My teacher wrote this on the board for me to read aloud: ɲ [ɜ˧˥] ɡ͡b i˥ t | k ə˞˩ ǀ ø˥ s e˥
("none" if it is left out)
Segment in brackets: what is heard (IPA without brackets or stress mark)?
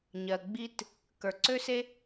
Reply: ɜ˩